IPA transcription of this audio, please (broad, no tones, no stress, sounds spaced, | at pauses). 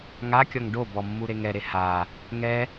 ŋ a kʲ ɔ ŋ ɖ o b ɔ mː u ɾ e ŋ ɛ ɾ e h a | ŋ ɛ